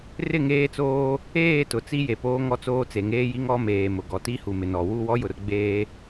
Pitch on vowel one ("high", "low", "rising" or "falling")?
falling